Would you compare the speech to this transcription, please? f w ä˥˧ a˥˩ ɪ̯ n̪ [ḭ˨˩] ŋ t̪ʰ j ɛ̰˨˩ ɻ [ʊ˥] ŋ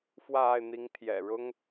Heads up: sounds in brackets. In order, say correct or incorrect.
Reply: incorrect: i˧˥, correct

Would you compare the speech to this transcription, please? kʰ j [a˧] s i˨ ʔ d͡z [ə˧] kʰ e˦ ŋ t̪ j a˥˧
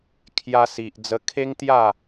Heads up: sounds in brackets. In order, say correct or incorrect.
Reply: correct, correct

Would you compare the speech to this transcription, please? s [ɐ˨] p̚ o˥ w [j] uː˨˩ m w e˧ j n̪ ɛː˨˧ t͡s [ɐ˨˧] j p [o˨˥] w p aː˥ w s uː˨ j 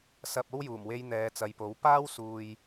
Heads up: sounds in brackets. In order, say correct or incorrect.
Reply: correct, correct, correct, correct

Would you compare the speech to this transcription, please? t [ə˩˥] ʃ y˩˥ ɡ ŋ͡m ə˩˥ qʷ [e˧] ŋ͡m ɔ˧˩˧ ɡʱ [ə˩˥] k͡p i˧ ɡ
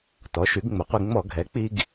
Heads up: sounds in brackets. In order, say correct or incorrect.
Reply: incorrect: ɔ˩˥, incorrect: i˧, incorrect: ɛ˩˥

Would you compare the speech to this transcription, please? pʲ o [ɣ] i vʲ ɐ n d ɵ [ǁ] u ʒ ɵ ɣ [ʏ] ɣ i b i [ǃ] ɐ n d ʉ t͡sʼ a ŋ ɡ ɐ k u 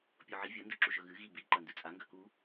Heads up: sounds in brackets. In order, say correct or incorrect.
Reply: incorrect: ʕ, correct, incorrect: ɨ, correct

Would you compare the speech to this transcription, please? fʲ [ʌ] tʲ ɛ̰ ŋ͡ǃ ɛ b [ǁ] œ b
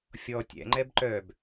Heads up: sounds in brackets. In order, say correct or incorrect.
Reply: incorrect: ɔ, incorrect: ǃ

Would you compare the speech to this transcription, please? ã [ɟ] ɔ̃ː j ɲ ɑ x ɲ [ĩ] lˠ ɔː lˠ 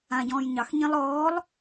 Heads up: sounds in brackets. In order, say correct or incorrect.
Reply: correct, correct

